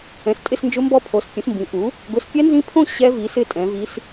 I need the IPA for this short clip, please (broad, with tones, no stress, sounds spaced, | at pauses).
ɛ̃˨˥ s tʼ ɪ˥˧ s n d͡ʒ ʊ˦˥ m b ɔ˦˥ pʰ o˨˥ s pʲ ũ˨˥ s m b ĩ˨˥ ʔ u˨˥ | ɡ ʊ˨˥ s pʲ ɛ˦˥ n z ĩ˦˥ pʰ õ˥˧ ɕ ɛ˦˥ v i˨˥ s ɪ˥˧ tʼ ɛ̃˨˥ v i˦˥ s